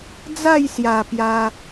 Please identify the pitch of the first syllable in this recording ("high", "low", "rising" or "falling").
falling